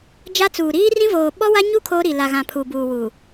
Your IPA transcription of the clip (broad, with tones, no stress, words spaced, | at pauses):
d͡ʒa˦t͡suː˨ ɾiː˦rĩ˦voː˨ ɓɔ˦wa˦ɲu˦ kʰoː˦ɾi˨ la˨ɣã˨ pʰuː˨buː˨ wu˨